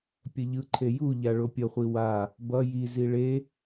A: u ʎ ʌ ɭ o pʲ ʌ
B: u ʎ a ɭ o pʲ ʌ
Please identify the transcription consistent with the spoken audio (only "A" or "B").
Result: B